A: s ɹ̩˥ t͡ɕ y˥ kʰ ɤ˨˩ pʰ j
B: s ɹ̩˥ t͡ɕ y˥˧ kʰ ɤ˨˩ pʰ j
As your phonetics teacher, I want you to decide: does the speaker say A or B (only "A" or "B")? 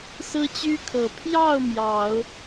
A